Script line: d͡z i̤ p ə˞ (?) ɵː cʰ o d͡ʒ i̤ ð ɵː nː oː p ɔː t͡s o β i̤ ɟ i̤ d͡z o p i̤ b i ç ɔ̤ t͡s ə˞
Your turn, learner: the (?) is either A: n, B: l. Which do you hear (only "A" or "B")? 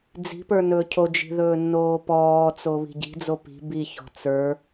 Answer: A